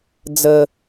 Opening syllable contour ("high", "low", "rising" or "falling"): low